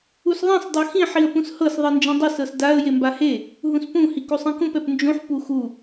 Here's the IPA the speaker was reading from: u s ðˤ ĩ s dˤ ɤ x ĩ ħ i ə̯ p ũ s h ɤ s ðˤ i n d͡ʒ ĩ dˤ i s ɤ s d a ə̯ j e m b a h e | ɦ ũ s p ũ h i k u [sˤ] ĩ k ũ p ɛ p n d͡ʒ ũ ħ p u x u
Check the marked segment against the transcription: correct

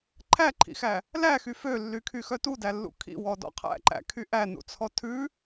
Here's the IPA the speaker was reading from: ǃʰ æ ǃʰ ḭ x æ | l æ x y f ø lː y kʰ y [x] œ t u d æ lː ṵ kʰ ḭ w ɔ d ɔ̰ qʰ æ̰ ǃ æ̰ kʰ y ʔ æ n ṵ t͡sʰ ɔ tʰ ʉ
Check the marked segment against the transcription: correct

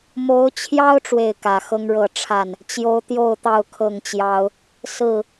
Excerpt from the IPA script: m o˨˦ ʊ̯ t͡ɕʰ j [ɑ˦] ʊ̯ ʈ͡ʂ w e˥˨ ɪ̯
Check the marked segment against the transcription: correct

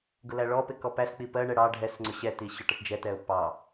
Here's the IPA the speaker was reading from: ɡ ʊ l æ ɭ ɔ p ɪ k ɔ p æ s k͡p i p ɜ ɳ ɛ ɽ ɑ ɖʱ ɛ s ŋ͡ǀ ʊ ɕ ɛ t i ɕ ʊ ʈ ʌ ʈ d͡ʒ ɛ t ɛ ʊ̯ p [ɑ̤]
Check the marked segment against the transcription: incorrect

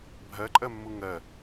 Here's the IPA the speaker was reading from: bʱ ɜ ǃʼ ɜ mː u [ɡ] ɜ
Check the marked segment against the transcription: incorrect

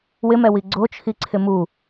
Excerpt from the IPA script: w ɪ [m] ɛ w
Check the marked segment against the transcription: correct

